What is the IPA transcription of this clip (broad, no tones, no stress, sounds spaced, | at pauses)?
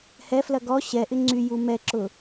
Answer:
h ɛ f l ɐ ɡ ɔ ɕ ɛ ʔ ɪ ŋ͡ǀ y j u m ɛ ǁ ʊ